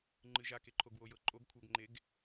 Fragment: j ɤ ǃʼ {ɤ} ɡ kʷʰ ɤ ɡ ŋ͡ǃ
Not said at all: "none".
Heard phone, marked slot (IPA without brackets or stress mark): o